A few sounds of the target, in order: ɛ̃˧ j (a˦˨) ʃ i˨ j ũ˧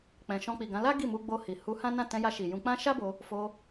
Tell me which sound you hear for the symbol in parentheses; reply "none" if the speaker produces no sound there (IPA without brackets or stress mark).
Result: a˧